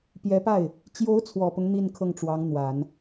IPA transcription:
pjɛ˧˥pa˥˩ɪ̯ | t͡ɕjo˧˥ʊ̯ t͡sʰwɔ˨˩pʊ˦ŋ n̪i˥˧n kʰɤ˥˩ŋʈ͡ʂwɑ˧˥ŋn̪wa˨˩˦n

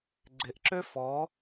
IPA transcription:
ɡ͡ǀɪʔǁø fɔ

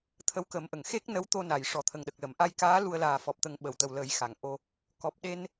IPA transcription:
t̪ʰə˧wkə˨˩˦mʔə˨˩˨ŋ xe˦˥k̚ nə˧˥wt̪o˧ na˨˩˨j ʂɔ˨˩t̪ʰə˨˩ŋɗə˨˩k̚lə˨˩˨m ʔa˧jkaː˧˥ lu˧ə̯ laː˨˩fɔ˨˩p̚t̪ə˨˩˦ŋ ɓə˨˩˨wt̪ə˨˩wlə˨˩˦j xa˨˩˨ŋʔo˧ | kɔ˨˩p̚ɗe˧n

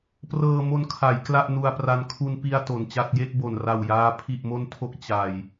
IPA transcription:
prɤː˧mo˧nkʰa˩˦j kla˥˩ʔnu˧a̯pra˧n kʰu˧npi˧a̯ to˨˩nt͡ɕa˥˩t̚ je˥˩k̚bo˨˩nra˨˩wjaː˧ pʰi˨˩ʔmo˧ntʰo˨˩k̚ t͡ɕa˨˩j

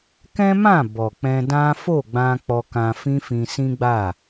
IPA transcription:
kɛ̃˦mã˦˨ bɔ˨k͡pɛ̃˧dã˦ fo˦˨ɡ͡bã˧ k͡pɔ˧kã˧ fĩ˦fĩ˧sĩ˦ɡ͡ba˦˨

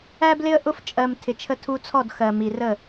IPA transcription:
æ˦blɪ˦ə̯ʔʊ˦f t͡ʃʼɜ˧m tʰɪ˨t͡ʃʰə˧ tʰu˧t͡sʰɔ˦˨d xɜ˨mi˨rə˦˨

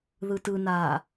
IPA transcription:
ðɯtɯnaː

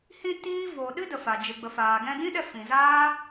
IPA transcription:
hĩ˧ tiː˦ vo˨ɗɨ˦ də˨fa˨ d͡ʒɨ˨ɡ͡bə˨faː˨ ɡɛ̃˧dĩ˦ɗɛ˧ fĩ˨ zaː˦

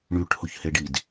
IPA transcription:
ɳyʈhʊçhe ɖid

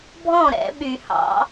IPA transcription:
bʱɔ̃˥˨ɾɛ̰˨˩˦ ɓy˨˩˦hɑ̰˨˩˦

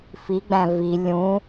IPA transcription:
fiɡ͡bæ̃ vi lʲũ

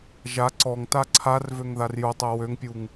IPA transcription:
ʒa ǀɔŋta ǀʰarvøŋðar jutˤɛ wøŋpʲuŋ

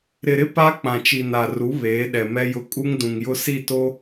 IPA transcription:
ɾɪ˨ɾɪ˦ pa˦ k͡pã˨t͡ʃi˨na˨ru˨˦ βeː˨˦ɗɛ˨mɛ˦jʊ˦ kʼu˦ŋdũ˨ŋjʊ˦ si˦˨to˦

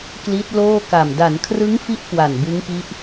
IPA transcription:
kli˦˥t̚loː˥˩ka˨˩m da˩˦nkʰrɯ˦˥ŋfi˦˥ʔ kwa˨˩nbɯ˦˥ŋpi˦˥ʔ

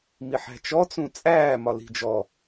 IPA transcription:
miħæ̤t͡ʃɔ t͡sũt͡sʼæː mɒli̤d͡ʒɔ

